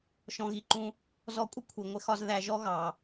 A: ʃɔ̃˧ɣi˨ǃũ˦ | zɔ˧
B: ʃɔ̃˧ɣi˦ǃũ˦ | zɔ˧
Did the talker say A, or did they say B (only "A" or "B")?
A